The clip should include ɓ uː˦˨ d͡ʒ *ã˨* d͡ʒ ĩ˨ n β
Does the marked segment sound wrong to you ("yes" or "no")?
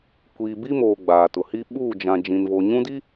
no